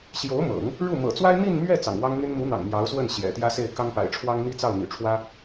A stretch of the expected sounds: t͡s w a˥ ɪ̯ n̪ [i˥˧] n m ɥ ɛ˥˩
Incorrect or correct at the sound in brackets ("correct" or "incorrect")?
correct